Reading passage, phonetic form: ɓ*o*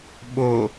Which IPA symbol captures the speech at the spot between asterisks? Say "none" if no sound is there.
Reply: o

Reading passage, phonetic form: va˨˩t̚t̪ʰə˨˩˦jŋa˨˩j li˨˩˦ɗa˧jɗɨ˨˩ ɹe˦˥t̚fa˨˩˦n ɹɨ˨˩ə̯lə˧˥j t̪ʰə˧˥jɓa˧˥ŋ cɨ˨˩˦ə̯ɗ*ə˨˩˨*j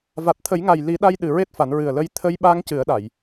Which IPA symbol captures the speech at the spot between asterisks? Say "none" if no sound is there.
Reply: a˨˩˨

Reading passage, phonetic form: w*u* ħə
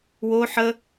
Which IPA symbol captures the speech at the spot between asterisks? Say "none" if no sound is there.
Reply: o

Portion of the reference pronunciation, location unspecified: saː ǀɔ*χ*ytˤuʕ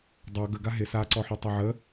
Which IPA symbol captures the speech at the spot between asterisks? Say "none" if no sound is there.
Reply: ħ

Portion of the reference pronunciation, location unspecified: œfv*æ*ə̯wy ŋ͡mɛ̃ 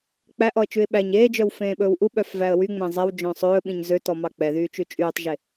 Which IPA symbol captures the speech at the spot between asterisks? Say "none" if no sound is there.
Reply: æ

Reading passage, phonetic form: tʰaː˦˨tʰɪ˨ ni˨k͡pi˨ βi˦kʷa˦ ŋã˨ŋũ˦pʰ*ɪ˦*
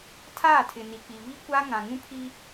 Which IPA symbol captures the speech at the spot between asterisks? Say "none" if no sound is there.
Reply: i˦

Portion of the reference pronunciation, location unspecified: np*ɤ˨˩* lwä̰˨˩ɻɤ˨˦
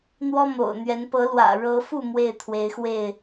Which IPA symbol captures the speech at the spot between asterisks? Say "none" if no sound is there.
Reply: ɤ˨˦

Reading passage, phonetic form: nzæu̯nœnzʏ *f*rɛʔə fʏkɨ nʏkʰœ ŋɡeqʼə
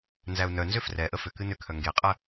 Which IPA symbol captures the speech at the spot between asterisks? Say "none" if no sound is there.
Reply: f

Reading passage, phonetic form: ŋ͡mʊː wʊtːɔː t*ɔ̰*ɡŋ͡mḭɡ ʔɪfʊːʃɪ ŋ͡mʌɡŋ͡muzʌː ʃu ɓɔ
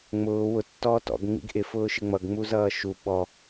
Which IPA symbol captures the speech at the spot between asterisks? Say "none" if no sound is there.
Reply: ɔ̰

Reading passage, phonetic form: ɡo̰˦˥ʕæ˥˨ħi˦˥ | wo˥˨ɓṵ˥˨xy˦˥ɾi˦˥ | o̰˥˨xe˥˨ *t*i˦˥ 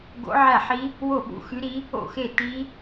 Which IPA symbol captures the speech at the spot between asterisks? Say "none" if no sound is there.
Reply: t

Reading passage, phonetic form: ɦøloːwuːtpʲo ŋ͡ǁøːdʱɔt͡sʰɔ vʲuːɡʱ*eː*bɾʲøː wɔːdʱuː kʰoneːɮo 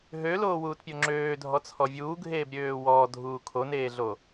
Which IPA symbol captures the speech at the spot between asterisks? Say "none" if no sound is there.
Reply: eː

